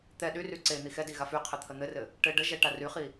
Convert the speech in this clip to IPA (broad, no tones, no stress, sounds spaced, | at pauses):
t̪ ɛ ɗ y r y ǀ e n̪ i x ɛ d i ɣ a f y qʰ ɘ t̪ʰ ə n̪ ɘ r ɘ | ʈ ɘ ɖ ə ʒ ɛ ʈ a r y χ i